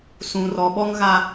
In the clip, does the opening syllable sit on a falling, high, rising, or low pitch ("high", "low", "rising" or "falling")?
low